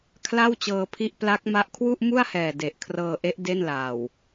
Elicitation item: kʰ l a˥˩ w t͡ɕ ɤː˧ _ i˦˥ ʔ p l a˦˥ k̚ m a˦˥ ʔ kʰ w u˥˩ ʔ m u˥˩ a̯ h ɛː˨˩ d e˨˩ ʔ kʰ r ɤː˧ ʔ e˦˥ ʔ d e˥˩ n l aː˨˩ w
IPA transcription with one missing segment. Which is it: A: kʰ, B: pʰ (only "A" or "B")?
B